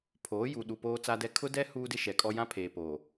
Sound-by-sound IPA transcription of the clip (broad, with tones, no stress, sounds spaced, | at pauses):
pʰ oː˨˦ j u˨ ɗ u˨ p oː˨ t͡s a˨ d ɛ˨ kʰ ʊ˦ d ɛ˦ h uː˦ d ɪ˦ ʃ ɛ˨ kʼ ɔ˦ j ã˦ pʰ eː˨ p oː˨